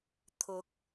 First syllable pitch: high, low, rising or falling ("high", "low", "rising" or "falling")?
rising